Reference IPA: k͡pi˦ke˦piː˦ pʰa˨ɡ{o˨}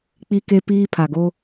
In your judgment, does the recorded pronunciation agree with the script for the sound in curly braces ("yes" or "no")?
no